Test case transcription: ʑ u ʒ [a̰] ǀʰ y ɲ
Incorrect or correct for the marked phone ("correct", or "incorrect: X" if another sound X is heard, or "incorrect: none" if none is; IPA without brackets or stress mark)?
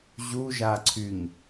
incorrect: a